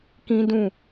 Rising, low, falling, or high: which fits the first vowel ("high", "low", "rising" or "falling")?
high